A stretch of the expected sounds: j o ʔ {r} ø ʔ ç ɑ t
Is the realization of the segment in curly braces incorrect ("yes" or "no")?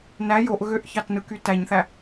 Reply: yes